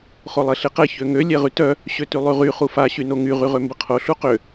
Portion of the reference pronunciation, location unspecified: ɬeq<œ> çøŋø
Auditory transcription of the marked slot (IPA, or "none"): ɛ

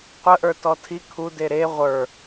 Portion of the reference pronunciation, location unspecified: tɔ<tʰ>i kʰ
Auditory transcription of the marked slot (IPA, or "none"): tʰ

